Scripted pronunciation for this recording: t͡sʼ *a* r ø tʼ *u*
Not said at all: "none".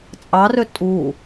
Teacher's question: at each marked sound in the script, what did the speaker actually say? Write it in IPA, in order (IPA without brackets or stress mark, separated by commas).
ɑ, u